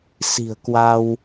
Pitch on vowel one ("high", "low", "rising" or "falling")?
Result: low